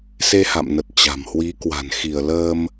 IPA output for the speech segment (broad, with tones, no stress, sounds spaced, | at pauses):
s e˧ h a̰˧˨ m n ə˨˩ t̚ t͡ɕ a̤˨˩ m h w i˨˦ k w a̤˨˩ n x i˧˩ ə̯ l əː˧ m